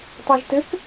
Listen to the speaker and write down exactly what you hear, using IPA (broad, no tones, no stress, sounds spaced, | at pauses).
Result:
tˤ ɛ ʒ t ɘ k